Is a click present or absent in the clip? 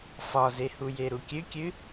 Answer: absent